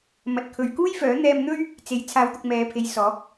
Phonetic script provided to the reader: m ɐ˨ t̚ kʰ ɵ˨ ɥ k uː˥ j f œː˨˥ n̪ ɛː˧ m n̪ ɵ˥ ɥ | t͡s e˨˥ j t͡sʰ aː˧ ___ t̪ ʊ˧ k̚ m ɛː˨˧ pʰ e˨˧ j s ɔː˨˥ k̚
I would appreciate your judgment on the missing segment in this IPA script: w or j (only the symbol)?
w